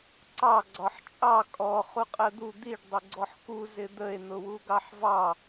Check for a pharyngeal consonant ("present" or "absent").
present